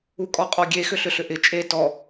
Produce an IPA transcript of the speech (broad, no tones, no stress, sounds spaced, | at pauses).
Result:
u kʼ ɔ qʼ ɔ ɡʲ e x ʏ ɬ ʏ ɬ ʏ ʔ ɪ t͡ʃʼ e t ɔ